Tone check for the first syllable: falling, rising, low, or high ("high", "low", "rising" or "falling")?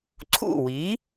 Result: falling